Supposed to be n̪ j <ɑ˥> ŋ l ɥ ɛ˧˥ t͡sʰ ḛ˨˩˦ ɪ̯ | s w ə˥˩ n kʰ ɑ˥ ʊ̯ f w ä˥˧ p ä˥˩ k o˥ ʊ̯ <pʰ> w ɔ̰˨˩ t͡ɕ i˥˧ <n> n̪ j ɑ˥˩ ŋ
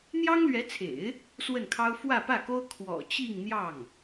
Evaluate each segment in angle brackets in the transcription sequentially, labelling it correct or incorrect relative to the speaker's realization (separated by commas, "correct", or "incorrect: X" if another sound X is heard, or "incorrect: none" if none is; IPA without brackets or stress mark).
correct, incorrect: kʰ, incorrect: ŋ